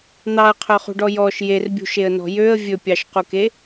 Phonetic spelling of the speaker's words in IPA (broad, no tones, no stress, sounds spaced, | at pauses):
n̪ ɑ ə̯ qʰ œ χ ṳ ɖ ɔ j ɔ ʃ j e r bʲ ṳ ʃ e ə̯ n ɔ̤ j ø ə̯ vʲ ɵ pʲ ɑ ʃ q u k e